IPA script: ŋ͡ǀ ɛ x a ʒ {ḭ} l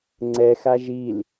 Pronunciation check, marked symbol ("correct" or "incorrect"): incorrect